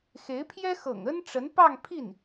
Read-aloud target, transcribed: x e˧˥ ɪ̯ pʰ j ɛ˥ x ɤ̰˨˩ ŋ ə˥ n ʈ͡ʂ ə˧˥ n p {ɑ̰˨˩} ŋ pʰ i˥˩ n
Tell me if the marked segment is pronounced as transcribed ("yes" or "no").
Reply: no